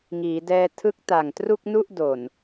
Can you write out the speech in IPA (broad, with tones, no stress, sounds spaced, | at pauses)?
ŋ iː˩˦ d ɛː˧ tʰ ɯ˦˥ k̚ t a˨˩ ŋ t r u˥˩ k̚ n u˥˩ ʔ d o˨˩ n